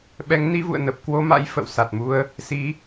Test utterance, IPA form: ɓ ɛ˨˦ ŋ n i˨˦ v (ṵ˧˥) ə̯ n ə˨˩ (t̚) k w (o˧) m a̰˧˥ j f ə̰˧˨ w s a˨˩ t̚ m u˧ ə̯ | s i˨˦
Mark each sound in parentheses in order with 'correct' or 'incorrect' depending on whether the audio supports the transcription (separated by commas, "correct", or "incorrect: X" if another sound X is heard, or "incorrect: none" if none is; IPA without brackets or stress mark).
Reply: incorrect: ṵ˧˨, incorrect: p̚, correct